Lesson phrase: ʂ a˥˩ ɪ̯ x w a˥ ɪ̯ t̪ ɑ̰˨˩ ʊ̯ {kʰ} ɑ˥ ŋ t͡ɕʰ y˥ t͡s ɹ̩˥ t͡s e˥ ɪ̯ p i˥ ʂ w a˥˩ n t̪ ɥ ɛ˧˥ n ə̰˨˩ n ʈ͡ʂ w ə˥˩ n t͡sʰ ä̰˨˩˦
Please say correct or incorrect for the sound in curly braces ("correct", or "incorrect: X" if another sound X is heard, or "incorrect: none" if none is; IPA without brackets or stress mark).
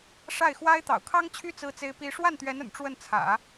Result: correct